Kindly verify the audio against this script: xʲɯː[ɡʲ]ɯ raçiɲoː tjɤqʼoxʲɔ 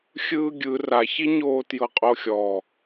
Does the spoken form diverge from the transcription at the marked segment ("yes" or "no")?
no